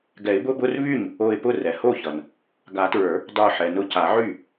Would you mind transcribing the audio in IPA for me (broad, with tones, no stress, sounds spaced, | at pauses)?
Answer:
ɡ ɛ˨˩˦ ɪ̯ b ʊ˧˥˧ b ʊ˧˥˧ r β y˥˩ ɲ | o˧˩ ɪ̯ p ʊ˥˩ r ɛ˩ h o˥˩ ç ʌ˩ n | ɡ a˨˩˦ t ɹ ə˞˨˩˦ | dˤ ə˞˧˩ ħ ɛ˩ n ʊ˧˩ c a˨˩˦ ʕ y˥˩